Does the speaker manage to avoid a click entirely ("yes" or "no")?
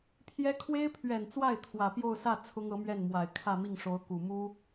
yes